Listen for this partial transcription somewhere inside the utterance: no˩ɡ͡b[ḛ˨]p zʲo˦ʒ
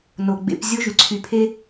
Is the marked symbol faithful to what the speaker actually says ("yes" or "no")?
yes